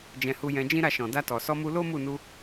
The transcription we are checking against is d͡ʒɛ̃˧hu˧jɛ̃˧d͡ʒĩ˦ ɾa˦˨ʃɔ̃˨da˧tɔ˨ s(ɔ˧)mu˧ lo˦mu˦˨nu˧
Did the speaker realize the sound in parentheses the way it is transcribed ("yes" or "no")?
yes